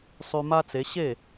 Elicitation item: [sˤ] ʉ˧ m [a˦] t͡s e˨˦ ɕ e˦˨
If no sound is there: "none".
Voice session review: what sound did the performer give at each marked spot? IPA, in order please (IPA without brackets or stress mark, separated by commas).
sˤ, a˦